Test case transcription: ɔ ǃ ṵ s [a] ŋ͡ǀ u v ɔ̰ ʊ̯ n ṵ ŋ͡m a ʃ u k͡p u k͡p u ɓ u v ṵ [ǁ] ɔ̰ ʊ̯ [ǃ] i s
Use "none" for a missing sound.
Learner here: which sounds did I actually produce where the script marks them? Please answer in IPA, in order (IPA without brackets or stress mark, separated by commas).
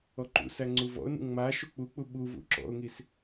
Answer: æ, ǁ, ŋ